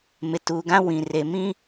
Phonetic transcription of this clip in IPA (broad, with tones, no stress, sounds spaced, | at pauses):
m ɪ˨ t uː˨ ɡ ã˦ w ĩ˨ r e˨ m ĩ˦